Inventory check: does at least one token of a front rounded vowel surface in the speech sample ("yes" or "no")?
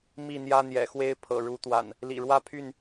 yes